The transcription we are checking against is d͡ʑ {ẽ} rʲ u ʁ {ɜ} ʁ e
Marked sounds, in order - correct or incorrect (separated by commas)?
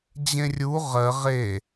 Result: correct, correct